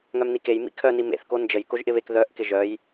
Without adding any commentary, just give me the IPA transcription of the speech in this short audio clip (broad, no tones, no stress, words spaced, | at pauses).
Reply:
ŋœmnikej mḭkʰœ nimḛθ kond͡ʒəj koʒʔɪβek ðœʔ kɪʒœj